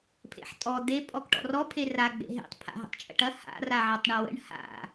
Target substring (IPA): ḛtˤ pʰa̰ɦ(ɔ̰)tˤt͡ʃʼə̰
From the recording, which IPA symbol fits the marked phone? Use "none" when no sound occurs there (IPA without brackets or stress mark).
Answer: ə̰